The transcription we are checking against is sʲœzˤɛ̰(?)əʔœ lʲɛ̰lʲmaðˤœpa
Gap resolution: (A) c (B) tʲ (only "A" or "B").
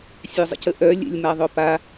A